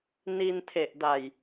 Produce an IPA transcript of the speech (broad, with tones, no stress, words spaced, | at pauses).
ni˧ntʰe˨˩ʔ da˨˩j